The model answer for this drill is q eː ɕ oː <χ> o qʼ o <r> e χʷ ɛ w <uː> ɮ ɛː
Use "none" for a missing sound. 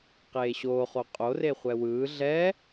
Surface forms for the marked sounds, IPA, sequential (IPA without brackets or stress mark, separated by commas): χ, r, ɯː